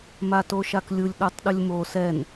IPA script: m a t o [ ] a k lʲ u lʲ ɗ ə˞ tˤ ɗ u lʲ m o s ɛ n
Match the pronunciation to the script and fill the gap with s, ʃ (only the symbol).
ʃ